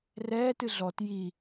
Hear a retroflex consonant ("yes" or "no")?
no